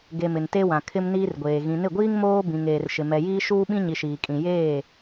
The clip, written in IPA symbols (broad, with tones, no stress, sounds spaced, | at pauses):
ɡ e˨ m ɪ˨ n t e˦ w ã˨ kʰ ɪ˦ m n iː˦ r ɡʷ eː˨ ɣ ĩ˨ n ɪ˦˨ ɡʷ iː˦ ŋ m oː˦ b ĩ˨ ŋ eː˨ r ʃ ɪ˨ m ɛ˨ j iː˦ ʃ uː˦ ɓ ĩ˦ ɲ i˨ ʃ iː˨ kʼ ĩ˨ j eː˦˨